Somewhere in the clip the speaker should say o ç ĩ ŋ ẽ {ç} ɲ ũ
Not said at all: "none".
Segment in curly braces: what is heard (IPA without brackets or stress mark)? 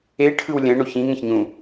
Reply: ç